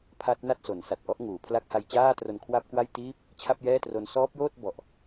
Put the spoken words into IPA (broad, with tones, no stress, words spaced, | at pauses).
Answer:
pʰa˦˥t̚na˥˩t̚so˩˦n sa˨˩t̚ʔɔ˥˩ʔŋuː˩˦pʰla˥˩k̚ ha˧jt͡ɕaː˥˩tro˧n kʰwa˥˩p̚kwa˥˩jtiː˥˩p̚ | t͡ɕʰa˥˩p̚jɛː˥˩tro˦˥n sɔː˦˥p̚joː˥˩t̚bɔ˨˩ʔ